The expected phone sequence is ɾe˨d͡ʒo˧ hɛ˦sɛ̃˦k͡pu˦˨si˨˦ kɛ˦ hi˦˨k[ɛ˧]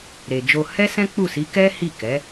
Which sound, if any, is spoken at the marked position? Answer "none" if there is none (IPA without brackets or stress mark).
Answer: ɛ˨˦